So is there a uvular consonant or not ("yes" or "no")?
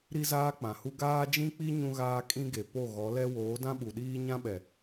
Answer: no